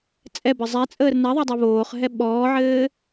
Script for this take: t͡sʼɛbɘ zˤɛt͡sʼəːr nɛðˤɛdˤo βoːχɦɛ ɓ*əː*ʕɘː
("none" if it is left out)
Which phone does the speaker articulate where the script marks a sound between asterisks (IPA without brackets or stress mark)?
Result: ɔː